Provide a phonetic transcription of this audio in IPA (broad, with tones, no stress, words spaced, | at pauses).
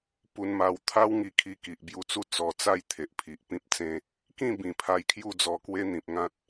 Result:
pu˧nma˧w t̪ʰa˦wŋi˧ kʰi˧ki˨ʔbju˧t͡su˦ t͡sɔ˧t͡sa˥˧j t̪ʰe˨ʔpʰi˨ʔpĩ˦p̚t͡sẽ˦ | kĩ˥˧ bĩ˨˩pʰa˧jkʰju˥˧d͡zɔ˧ kwe˦ n̪ĩ˨p̚ ŋã˦t̚